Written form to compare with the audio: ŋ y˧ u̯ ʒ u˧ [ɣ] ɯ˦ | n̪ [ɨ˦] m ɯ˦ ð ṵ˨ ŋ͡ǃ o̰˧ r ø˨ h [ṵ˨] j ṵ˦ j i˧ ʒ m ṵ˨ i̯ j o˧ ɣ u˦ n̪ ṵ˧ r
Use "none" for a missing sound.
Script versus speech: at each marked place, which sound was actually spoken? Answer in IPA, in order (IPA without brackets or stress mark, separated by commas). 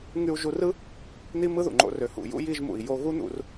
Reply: r, i˦, ṵ˨